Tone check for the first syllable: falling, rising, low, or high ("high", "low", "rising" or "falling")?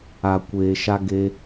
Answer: low